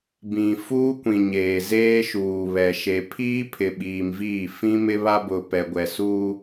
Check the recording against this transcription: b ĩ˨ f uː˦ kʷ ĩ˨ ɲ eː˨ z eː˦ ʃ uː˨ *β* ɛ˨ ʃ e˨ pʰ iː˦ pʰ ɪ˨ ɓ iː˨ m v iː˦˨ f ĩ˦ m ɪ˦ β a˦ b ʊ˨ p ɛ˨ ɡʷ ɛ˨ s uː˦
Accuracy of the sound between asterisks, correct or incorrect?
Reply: correct